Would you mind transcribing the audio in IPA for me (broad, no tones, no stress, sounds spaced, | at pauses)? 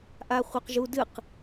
ʔ a χʷ œ q ʒ u d ɨ q